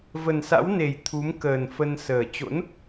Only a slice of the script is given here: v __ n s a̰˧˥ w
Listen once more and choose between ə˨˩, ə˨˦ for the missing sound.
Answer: ə˨˩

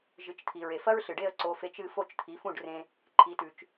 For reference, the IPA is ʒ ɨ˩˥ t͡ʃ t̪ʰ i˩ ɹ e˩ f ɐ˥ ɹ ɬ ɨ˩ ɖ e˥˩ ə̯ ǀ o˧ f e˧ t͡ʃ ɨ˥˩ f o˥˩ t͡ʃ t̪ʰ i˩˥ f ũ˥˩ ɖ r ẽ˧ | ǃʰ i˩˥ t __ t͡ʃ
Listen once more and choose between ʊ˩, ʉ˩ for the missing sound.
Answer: ʉ˩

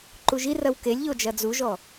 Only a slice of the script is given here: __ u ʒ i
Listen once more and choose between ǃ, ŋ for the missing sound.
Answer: ǃ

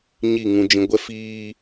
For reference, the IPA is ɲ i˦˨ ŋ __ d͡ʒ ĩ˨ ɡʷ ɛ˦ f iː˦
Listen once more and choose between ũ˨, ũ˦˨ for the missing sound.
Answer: ũ˨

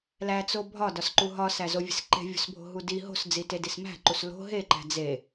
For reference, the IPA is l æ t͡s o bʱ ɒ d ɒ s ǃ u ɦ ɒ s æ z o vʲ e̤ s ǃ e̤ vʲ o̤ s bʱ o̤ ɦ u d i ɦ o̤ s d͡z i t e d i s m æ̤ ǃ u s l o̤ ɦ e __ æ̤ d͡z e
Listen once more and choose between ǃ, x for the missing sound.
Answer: ǃ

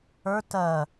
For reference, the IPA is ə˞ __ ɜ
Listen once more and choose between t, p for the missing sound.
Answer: t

